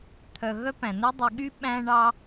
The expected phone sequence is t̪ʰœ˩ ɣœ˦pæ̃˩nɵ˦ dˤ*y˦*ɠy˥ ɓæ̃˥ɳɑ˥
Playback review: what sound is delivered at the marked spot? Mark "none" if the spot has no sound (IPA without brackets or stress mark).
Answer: y˨